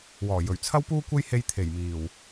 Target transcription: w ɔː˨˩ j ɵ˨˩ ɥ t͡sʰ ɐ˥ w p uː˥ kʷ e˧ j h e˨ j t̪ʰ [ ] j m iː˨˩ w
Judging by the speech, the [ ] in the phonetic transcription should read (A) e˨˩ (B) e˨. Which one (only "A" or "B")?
A